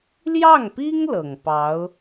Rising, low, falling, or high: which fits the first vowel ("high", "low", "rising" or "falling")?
falling